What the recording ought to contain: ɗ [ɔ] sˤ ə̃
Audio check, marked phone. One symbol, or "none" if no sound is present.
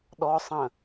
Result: ɔ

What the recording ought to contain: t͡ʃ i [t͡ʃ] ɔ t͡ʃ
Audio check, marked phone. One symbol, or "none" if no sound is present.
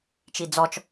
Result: d͡z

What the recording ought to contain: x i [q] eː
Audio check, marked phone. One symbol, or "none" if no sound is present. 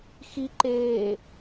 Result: ǃ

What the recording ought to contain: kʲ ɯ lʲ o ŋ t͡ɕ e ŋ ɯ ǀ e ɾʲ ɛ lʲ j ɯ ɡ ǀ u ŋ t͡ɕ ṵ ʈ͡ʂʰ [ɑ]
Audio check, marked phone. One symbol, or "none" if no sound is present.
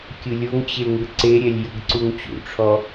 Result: ɔ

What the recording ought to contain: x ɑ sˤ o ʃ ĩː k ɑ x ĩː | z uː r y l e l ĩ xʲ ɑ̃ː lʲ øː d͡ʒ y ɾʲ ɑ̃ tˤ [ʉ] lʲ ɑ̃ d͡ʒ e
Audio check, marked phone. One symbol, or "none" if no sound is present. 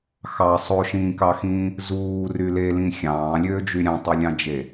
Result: ø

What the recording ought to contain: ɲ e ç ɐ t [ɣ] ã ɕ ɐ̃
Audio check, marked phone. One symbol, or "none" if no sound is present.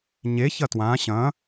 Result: w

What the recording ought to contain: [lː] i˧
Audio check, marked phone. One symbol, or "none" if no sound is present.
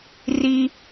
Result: r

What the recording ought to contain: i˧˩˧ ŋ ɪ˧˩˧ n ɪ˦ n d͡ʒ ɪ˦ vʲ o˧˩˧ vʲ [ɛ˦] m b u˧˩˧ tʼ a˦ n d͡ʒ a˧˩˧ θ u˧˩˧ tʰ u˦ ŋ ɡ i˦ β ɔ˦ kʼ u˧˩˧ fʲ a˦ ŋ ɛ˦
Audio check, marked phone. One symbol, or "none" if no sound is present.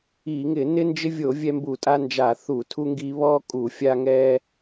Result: ɛ˦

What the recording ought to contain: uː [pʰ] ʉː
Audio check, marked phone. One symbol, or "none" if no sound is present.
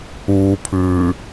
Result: pʰ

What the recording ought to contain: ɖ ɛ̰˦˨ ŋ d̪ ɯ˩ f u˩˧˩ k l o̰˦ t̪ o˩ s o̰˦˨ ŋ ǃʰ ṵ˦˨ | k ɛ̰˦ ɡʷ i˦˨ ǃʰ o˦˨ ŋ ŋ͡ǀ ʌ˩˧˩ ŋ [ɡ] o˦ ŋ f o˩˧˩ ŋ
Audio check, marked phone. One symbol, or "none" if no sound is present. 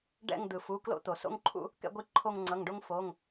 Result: ɖ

